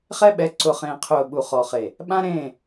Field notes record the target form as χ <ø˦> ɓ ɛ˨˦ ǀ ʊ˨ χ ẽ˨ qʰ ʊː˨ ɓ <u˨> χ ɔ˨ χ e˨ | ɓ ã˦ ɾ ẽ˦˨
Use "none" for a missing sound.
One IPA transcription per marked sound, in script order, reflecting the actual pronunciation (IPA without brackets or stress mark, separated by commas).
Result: ɛ˦, u˨